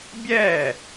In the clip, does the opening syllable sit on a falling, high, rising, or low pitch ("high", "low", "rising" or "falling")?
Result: falling